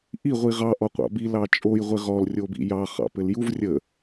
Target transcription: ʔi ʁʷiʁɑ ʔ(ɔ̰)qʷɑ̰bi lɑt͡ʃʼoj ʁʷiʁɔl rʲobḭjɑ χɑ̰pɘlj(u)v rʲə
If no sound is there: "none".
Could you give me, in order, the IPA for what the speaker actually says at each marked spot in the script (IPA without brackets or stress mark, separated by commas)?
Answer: ɔ, u